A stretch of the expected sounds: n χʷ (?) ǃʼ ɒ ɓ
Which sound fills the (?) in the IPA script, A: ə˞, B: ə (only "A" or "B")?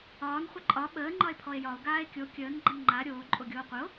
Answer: B